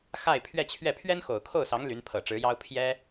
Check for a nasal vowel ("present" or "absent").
absent